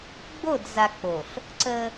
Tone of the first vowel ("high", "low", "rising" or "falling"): falling